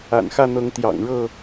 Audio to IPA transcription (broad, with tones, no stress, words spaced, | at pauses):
a̰˨˩nxä˥˨n̪ɤ˨˦ŋ t̪jɑ̰˨˩ŋɻɤ˥˨